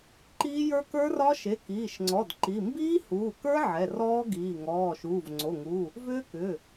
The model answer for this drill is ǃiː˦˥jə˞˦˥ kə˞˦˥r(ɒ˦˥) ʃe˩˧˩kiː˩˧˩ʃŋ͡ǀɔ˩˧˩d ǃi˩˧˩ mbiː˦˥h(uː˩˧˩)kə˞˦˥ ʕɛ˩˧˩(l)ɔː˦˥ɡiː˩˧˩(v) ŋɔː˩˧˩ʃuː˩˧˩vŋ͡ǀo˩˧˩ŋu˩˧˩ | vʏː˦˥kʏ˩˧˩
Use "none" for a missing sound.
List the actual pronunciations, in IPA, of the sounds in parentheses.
ɒ˦˥, uː˩˧˩, r, none

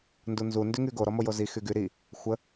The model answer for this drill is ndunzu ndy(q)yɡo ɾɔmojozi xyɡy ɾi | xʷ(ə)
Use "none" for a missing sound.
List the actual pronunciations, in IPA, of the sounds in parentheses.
ŋ, ə

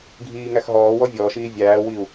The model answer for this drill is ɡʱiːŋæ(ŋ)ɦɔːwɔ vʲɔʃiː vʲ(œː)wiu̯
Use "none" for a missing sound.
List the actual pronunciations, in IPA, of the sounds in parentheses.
x, æː

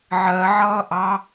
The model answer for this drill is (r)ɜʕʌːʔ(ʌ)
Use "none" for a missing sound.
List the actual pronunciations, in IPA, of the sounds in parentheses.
ʕ, ɑ

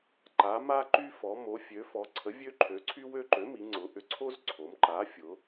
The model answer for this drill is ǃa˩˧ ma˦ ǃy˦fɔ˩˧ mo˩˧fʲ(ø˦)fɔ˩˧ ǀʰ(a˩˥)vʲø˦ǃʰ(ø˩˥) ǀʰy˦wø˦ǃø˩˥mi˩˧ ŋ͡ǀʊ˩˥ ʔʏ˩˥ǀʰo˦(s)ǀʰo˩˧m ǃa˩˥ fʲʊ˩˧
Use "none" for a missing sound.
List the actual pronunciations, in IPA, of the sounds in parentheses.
ø˩˧, ə˩˥, ø˩˥, z

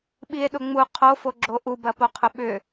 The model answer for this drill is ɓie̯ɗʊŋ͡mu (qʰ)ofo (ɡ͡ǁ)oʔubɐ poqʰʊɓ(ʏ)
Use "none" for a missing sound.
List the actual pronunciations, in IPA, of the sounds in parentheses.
qʰ, ɡ͡ǁ, ʏ

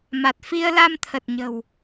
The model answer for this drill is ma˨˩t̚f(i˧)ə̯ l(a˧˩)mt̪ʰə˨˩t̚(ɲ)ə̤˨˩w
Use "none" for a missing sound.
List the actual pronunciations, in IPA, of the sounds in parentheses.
i˧, a˧, ɲ

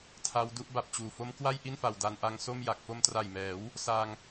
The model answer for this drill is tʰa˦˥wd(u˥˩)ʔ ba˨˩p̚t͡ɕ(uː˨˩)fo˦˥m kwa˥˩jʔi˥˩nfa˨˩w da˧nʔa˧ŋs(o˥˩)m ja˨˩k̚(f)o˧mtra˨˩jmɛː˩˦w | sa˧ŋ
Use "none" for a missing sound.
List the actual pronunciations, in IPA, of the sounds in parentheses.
u˥˩, uː˨˩, o˥˩, f

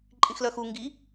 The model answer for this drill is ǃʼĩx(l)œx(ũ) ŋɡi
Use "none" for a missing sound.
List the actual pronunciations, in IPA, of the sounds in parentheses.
l, u

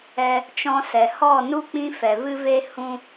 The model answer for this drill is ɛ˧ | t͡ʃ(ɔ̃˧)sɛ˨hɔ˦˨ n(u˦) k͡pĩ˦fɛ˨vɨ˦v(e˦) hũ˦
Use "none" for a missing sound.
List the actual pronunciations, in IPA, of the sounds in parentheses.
ɔ̃˧, u˦, e˦

